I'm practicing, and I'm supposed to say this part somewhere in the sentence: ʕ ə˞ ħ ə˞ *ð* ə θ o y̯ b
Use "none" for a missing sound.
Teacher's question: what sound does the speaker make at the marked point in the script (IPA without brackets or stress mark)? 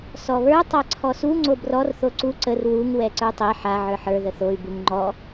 ð